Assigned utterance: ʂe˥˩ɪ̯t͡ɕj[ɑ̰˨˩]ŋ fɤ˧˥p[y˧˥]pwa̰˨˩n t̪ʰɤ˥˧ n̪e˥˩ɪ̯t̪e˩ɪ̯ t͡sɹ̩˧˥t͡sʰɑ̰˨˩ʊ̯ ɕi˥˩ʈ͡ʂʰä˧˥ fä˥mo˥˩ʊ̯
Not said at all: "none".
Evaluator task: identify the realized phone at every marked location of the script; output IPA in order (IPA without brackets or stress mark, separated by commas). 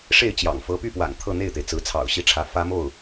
ɑ̰˨˩, y˥˩